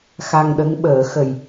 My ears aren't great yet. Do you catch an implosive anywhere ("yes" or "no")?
yes